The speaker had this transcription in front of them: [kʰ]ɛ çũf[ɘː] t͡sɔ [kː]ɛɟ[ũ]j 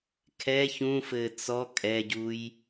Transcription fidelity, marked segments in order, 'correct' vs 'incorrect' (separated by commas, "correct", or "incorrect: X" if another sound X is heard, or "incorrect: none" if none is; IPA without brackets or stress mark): correct, correct, incorrect: kʼ, incorrect: u